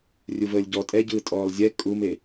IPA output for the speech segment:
rʲ u v əː lʲ ɟ ɔ tʼ ɛ ɟ ɯː tʼ ɔː lˠ zʲ ɛ kʼ u m e

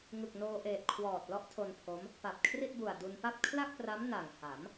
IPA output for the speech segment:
ŋ ɯ˨˩ k̚ n oː˧ ʔ eː˨˩ t̚ kʰ w ɔː˨˩ t̚ l ɔ˦˥ ʔ tʰ o˧ n pʰ o˦˥ m | p a˨˩ p̚ kʰ r i˥˩ t̚ b u˨˩ a̯ d u˧ n p a˥˩ p̚ kʰ l a˥˩ k̚ p r a˦˥ m n a˨˩ ŋ h a˩˦ m

